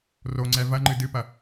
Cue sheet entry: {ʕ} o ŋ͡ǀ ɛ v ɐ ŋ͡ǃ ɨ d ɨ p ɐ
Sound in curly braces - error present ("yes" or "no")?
yes